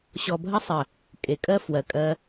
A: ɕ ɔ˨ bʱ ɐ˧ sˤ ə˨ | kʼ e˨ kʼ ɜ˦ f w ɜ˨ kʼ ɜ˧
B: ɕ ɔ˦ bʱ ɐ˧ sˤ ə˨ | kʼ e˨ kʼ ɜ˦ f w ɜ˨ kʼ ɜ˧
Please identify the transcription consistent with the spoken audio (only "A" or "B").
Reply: A